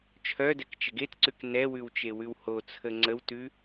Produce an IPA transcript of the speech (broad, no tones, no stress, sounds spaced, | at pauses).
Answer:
t͡ʃʰ œ d ɛ k t͡ʃ ə ɡ e t ǀ ʉ k n ɛ w ʉ w t͡ʃ e w ʉ w h o t͡sʰ ə ŋ͡ǀ ə w t ʉ